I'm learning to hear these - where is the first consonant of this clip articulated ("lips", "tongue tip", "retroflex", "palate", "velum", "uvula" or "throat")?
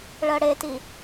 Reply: retroflex